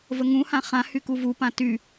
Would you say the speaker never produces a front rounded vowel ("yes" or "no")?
no